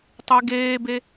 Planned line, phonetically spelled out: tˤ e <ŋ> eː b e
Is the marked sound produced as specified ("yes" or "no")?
no